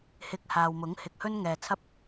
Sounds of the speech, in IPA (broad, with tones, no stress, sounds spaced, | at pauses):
h ɪ˧ k̚ h aː˨ w m ʊ˨˥ ŋ h ɪ˨ k̚ h ɵ˥ n ŋ ɛː˨ t͡sʰ ɐ˥ p̚